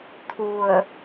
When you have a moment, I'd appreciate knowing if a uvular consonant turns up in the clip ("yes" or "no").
no